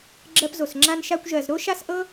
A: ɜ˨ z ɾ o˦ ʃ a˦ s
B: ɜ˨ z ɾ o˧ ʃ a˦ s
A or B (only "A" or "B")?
A